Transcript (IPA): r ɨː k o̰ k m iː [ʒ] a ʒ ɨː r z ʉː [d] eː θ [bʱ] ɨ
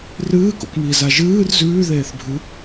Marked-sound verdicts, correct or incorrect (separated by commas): incorrect, incorrect, correct